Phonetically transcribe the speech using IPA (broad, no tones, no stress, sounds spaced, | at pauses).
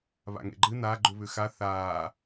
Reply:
β a̰ ŋ ḛ ɡ͡ǃ ɨ n a ɡ͡ǃ u β ʉ x a θ aː